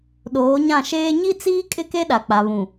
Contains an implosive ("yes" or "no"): yes